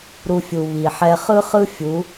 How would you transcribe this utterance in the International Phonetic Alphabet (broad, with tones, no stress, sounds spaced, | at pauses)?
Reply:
ɾ u˧ fʲ u˨ β i˨ ħ ɛ˦ χ ɯ˦ χ ɯ˦ fʲ u˨˦